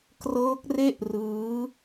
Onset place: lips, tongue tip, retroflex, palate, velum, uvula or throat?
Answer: velum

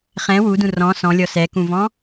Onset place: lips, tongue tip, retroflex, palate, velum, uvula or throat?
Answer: uvula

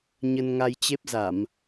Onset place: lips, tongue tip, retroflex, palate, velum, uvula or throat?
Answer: palate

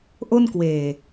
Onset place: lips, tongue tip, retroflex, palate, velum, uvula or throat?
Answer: throat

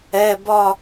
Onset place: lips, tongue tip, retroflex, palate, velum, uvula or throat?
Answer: lips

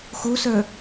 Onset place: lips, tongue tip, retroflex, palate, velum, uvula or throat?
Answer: velum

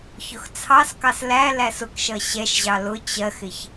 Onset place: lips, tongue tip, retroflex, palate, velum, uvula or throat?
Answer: palate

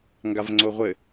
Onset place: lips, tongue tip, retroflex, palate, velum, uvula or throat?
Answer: velum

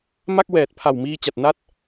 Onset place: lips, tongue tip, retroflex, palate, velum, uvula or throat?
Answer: lips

